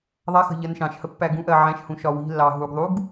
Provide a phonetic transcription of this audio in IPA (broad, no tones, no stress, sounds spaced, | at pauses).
ðˤ a x ə̤ ʎ ɜ n ʃ ɑ̃ ʃ h ə pː æ ɡ ũ ʔ ɜ ʕ æ̃ ʃ h ũ ʃ ɒ w i̤ lː ɑ ɦ u ɡ ðˤ u ɡ